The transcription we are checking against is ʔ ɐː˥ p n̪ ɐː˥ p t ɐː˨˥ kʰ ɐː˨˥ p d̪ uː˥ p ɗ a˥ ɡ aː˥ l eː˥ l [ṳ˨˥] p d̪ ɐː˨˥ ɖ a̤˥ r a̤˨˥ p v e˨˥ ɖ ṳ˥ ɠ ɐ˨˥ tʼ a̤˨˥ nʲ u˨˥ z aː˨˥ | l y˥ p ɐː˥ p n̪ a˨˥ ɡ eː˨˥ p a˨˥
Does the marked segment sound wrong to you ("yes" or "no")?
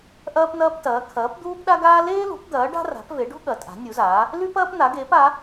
no